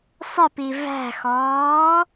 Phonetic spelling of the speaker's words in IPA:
sˤɪpi væ̤xɔː

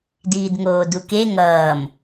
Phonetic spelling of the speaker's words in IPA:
diːdŋoːduke ŋʌːm

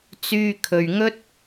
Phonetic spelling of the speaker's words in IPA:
t͡syː˧ kʰɵ˧ɥŋɵ˥t̚

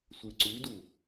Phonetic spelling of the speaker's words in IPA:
sʷɨǀʉdu

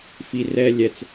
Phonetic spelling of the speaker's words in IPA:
fi rɛ lʲɛt͡s

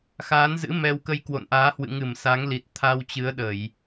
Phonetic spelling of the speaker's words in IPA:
xaː˨˦nzɨ̰˧˥ mɛ˧w kə˧jkwo̰˧˨nʔaː˨˦ hwɨ̰˧˨ŋɨ˧˩m sa˨˦ŋli˨˩t̚ t̪ʰa˧wt͡ɕɨ˨˦ə̯ɗə˧˩˨j

